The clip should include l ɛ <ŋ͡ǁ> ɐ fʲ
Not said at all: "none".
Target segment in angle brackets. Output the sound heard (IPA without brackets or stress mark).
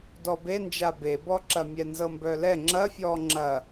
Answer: ŋ͡ǁ